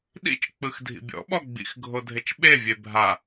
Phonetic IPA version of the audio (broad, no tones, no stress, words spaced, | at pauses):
ɗḭt͡ʃk͡pɯx dʱḭbʲɔ̰ɓɔ ɡ͡bḭxɡʱo dʱet͡ʃɓevʲe bʱa